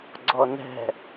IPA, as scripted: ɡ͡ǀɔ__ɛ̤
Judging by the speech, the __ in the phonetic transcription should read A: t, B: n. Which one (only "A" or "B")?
B